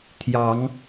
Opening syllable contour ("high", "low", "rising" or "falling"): rising